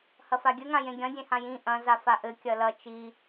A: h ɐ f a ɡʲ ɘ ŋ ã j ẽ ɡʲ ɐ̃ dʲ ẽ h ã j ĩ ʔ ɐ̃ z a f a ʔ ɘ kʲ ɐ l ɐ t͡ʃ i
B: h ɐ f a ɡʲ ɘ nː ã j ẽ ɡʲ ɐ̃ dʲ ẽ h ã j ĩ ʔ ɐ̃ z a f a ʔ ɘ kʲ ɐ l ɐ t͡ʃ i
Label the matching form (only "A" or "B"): A